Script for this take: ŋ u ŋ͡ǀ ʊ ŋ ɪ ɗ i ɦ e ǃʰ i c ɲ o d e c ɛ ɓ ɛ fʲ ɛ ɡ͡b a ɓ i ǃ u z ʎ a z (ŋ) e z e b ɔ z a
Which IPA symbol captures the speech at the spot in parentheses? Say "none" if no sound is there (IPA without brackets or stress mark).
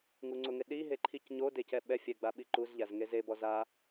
ŋ